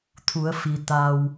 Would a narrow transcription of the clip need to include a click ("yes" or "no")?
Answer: no